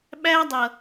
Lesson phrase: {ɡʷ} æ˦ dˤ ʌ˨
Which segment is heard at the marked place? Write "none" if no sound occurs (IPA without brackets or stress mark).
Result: ɓ